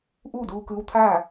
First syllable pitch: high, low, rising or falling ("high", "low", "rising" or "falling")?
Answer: falling